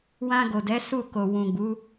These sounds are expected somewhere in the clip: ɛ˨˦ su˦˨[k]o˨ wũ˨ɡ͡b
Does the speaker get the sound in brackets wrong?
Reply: no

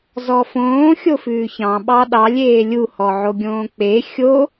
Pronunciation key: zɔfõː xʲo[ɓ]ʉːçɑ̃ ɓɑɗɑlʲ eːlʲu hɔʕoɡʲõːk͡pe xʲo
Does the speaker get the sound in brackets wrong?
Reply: yes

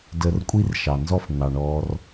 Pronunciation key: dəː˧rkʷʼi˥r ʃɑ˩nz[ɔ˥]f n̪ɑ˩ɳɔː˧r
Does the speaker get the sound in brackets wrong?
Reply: no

